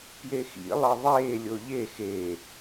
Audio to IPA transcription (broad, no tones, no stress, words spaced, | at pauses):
pjexḭ lˠɘðˤeː lʲoʎe xe